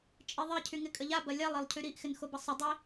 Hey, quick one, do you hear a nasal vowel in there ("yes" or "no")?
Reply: no